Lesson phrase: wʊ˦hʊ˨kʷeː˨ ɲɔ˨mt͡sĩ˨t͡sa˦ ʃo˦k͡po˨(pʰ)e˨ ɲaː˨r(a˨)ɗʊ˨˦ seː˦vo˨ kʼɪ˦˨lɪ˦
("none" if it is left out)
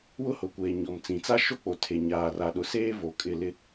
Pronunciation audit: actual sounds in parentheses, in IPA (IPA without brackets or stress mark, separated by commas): tʰ, a˨